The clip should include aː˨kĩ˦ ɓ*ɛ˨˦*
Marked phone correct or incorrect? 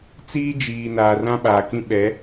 correct